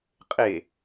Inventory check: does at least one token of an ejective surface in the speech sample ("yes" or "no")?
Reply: yes